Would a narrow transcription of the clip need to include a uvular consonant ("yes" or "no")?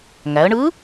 no